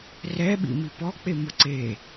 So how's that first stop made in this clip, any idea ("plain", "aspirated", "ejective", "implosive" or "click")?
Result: implosive